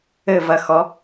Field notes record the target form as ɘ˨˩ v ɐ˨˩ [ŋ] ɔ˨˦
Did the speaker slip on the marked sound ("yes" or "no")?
yes